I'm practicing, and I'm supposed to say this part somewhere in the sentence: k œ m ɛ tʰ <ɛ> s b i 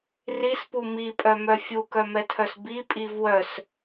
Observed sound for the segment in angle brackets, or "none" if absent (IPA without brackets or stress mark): œ